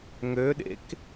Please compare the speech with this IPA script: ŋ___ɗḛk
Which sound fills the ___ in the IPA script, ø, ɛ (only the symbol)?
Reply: ø